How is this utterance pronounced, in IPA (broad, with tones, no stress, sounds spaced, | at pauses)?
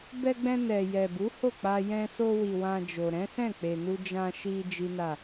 b ɛ˧ ɡ͡b ɛ̃˧ n ɛ˨ j ɛ˨ b u˨˦ h o˦˨ k͡p a˧ j ɛ̃˧ s o˧ w i˨ w ã˧ d͡ʒ o˨ ɾ ɛ̃˨˦ s ɛ̃˦˨ k͡p e˨ n u˧ d͡ʒ ã˧ ʃ i˧ d͡ʒ i˦ n a˦˨